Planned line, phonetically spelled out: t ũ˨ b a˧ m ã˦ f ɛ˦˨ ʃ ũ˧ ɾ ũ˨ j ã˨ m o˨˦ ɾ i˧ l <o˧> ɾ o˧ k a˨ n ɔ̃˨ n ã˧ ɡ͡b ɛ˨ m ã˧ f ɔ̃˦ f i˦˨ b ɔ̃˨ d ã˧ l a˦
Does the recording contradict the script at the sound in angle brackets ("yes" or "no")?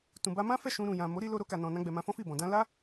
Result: no